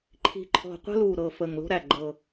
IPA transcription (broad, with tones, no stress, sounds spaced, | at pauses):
ǃʰ i̤˨˩ ǃʰ ɔ̤˨˩ qʷ ə̤˦ l u˨˩ ɾ ɤ˨˩ f ə˨˩ ŋ l o̤˦ ɾ æ˨˩ ɡ͡ǃ ɤ˨˩